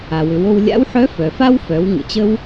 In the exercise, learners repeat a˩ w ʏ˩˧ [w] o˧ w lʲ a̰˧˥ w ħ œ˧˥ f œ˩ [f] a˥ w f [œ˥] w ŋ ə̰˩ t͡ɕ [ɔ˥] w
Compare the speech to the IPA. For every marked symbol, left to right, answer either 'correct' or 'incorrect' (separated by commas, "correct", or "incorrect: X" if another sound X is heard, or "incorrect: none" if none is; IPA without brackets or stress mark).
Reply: correct, correct, incorrect: œ˩˧, incorrect: ə˥